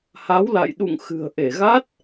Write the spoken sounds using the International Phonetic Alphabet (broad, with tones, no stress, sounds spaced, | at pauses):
h a˨˦ w l a̰˧˨ j ɗ ṵ˧˨ ŋ x ɨ̤˨˩ ə̯ ʔ e˧˩ ɣ a˦˥ t̚